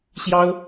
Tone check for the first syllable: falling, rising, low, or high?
high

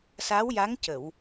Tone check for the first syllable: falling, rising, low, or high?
rising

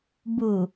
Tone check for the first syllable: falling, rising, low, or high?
low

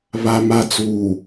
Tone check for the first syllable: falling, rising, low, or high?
low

